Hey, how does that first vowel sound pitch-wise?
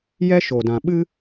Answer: high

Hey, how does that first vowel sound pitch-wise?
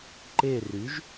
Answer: falling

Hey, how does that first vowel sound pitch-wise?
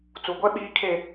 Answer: low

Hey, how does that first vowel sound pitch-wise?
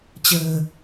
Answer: low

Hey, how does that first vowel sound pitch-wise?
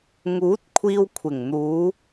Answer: rising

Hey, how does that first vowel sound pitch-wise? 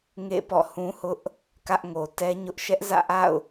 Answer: falling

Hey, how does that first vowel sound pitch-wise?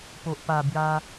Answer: low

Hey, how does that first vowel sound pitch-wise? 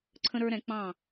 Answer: high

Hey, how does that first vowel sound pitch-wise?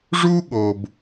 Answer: high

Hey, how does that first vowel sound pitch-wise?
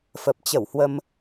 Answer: low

